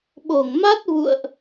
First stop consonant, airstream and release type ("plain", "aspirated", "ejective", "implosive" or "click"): implosive